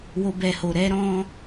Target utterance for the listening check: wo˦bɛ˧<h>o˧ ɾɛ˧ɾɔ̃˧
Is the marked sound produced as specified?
yes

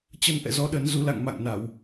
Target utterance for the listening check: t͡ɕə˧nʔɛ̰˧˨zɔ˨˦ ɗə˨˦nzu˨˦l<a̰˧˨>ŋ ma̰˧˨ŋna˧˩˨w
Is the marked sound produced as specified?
yes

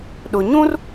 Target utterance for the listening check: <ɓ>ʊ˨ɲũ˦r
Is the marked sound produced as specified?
no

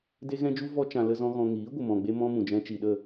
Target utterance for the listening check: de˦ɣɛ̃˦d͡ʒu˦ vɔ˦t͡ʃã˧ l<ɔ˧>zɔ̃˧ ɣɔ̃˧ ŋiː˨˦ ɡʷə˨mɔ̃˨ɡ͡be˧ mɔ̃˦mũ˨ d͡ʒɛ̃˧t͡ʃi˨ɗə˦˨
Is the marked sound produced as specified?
no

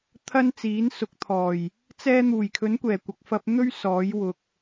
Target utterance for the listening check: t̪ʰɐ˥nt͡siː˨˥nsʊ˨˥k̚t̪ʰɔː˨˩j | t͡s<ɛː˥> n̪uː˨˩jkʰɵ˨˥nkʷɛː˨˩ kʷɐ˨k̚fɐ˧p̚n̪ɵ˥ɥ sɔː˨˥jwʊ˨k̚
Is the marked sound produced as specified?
yes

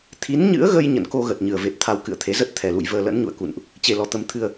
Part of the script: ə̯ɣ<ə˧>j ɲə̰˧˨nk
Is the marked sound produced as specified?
yes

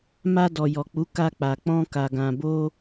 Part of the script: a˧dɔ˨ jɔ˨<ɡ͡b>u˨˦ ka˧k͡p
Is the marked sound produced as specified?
no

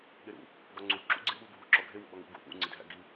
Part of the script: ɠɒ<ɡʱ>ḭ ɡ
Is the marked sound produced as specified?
no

